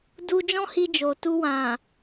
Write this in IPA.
d u˦ d͡ʒ ɔ̃˦ h i˧ d͡ʒ o˨ t u˧ w ã˨

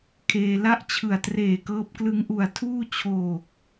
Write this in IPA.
kʰ eː˧ l a˥˩ ʔ t͡ɕʰ ɯ˨˩ a̯ t r eː˨˩ k ɤː˦˥ p̚ k l ɯ˧ ŋ ʔ u˨˩ a̯ tʰ uː˥˩ t͡ɕʰ oː˨˩ k̚

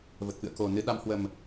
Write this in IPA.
v ə˨˩ t̚ f ɨ̰˧˨ ə̯ k o˨˩ n ɨ˨˦ ɗ a˨˦ m h w ə˨˩ m

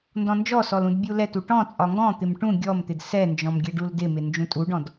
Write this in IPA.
n d ɔ̃ n d͡ʒ ɔ s ɔ l ũ d bʲ u l ɛ t u ʈ ɔ̃ t͡sʼ ɒ ŋ ɡ ɔ̃ t̪ ɪ m ʈ ũ ɡʲ ɔ m t̪ ɪ d s ɛ n d͡ʒ ɔ̃ m ɡʲ ɛ ɖ u l d ɪ m ɪ n d͡ʒ ũ tʼ u ɖ ɔ̃ d

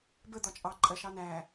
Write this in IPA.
b ə d̪ ɒ t͡ʃʼ ɑ ǃʼ ɜ ʃ ɑ n æ

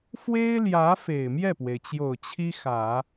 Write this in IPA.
f w e˥ ɪ̯ l j ä˧˥ f e˨˩ ɪ̯ m j ɛ˥˩ p w e˩ ɪ̯ t͡ɕ j o˨˩ ʊ̯ t͡ɕʰ i˥ x ä˨˩˦

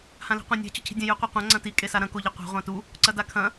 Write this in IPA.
h ã l i̤ qʷ ã nʲ a̤ t͡ɕ ɵ cʰ i̤ dʲ ɐ̃ j ʉ qʷ i qʷ ã ŋ͡ǀ ɐ̃ t i kʼ e s a ɾ ɐ̃ k o ʎ ɨ qʷ a̤ ʁʷ ã t u | ǀ ɐ d a kʰ ɐ̃

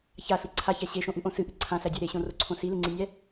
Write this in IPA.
ç a ɬ i ǀʰ a ç æ ɕ e ʃ õ ʔ ɨ ʔ õ s ɨ ʔ ɨ ǀʰ ã ɬ æ dʲ æ ɾ e ɕ õ r o ǀʰ õ s i l ɨ ŋ͡ǀ i nʲ æ

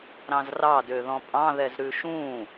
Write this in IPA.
ɾ ɑ̃ z r ɑ d ø ð ɔ̃ pʼ ɑ̃ ð ɛ z ɾ ʉ ʃ ũ

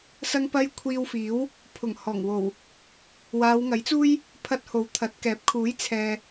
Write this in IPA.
s ɐ˥ ŋ p ɐ˥ j kʷʰ iː˧ w f iː˨˥ w | pʰ ʊ˨˩ ŋ h ɔː˨˩ ŋ w o˨˩ w | w aː˨˧ w ŋ ɐ˨˥ j t͡s uː˥ j | pʰ ɐ˥ t̚ h o˨ w t̪ʰ ɐ˨˥ t̚ k ɛː˨˥ p̚ kʰ uː˨˥ j t͡sʰ ɛː˨

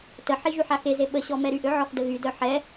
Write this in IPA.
t ə ħ i ʒ y ħ a x e z e ɓ ə ɕ ɔ m ɛ ɾ y ʔ ø ʕ ɔ x d ə ɣ y d œ ħ ɛ

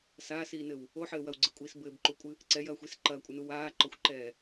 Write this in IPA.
s aː s iː n ɘ w | o ħ ɘː w ɐ w ɡ͡ǀ ɘ kʷʼ iː s b ɘː b ǃ u kʷʼ ɨ | ǀ ɛ j ɐː xʷ i s ǃ ɐː kʷʼ ɘ n u w aː ǃ ɔ xʷ ǃ ɛː

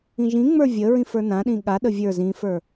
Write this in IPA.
ĩ ʒ ĩ ŋ͡m ə˞ vʲ ə ɹ ĩ f ə˞ n ã ɗ ĩ ɠ a ɗ ə vʲ ə˞ z ĩ f ə˞

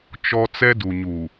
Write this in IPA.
t͡ʃ ɔ˦ t͡s ɛ˦ d u˨ ɲ u˨

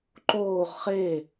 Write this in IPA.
ǃ oː ʁ χ e

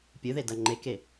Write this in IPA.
pʲ ɨ ð e d ɐ ŋ͡ǃ e k e

